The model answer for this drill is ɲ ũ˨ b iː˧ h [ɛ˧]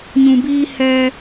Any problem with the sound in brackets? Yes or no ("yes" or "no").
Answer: no